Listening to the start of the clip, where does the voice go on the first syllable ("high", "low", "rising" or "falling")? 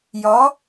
rising